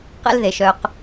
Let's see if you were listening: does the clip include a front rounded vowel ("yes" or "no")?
yes